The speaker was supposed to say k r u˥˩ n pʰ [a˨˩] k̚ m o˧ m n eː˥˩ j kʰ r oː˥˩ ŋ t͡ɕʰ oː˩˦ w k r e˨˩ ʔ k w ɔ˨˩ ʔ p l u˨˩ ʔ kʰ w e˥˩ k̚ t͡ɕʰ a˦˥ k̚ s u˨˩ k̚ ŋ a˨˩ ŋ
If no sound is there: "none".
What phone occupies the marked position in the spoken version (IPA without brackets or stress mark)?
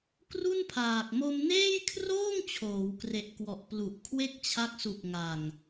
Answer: aː˨˩